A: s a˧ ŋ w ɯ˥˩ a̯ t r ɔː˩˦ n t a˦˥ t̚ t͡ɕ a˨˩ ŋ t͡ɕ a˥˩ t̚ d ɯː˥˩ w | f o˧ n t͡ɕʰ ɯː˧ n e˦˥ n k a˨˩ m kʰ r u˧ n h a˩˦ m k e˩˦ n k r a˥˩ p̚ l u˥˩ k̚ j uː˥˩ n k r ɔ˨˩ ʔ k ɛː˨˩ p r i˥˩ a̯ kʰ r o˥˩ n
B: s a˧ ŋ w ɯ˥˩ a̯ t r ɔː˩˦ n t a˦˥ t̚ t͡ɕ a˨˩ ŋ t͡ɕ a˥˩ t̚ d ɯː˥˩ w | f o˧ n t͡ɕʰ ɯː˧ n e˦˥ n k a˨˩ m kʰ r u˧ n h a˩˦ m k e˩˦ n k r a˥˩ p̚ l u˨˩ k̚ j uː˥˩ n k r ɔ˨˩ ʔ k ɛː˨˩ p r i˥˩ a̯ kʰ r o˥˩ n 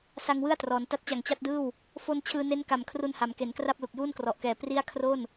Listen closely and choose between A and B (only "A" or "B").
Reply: B